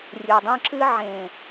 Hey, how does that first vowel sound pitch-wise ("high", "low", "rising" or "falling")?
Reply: low